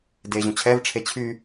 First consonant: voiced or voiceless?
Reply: voiced